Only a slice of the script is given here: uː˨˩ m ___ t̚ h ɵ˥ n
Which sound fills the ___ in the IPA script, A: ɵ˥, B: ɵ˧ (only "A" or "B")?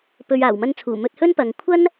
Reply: B